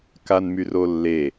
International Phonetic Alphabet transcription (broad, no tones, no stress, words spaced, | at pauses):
kanmyrolːe